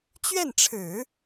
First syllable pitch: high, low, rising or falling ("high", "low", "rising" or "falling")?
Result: falling